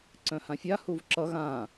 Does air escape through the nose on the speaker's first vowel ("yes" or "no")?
yes